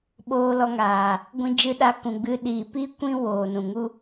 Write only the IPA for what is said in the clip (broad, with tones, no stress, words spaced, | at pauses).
ɓoː˧lɔ˧ŋaː˨ | ɡʷĩ˧d͡ʒɨ˧ɗa˧kũ˨ ɡ͡bɨ˧ ɗi˨pi˦kʷĩ˦ woː˨nũ˨ŋu˦